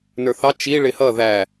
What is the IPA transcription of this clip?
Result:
n ə˞ θ ɑ t͡ʃ i ɭ ɪ h ʌ ð æ

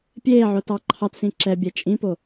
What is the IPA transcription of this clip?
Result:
pʲ eː ʕ o t ɑ ǃʰ ɑ t s ĩ ǁ ɛ bʲ ɛ t͡ʃʼ ĩ p o

